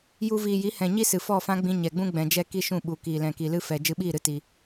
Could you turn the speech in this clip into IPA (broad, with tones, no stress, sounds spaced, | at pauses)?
j u˧ v iː˨ j i˨˦ h ɛ̃˨ ɲ i˦ s ɨ˨ f ɔ˦˨ f ã˦ ɡ͡b ĩ˧ ɲ ɛ˨ ɡ͡b ũ˦ ɡ͡b ɛ̃˧ d͡ʒ ɛ˦ k i˦ ʃ ũ˦˨ ɓ u˨ k iː˨ l ɛ̃˨ k i˨ l ɨ˦ f ɛ˧ d͡ʒ ɨ˧ ɓ iː˦˨ ɾ ɨ˧ t i˧